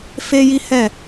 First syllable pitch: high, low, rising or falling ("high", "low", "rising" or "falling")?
high